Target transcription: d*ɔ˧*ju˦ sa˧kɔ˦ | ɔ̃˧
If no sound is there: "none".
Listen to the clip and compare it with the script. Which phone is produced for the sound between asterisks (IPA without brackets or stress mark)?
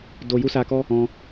o˧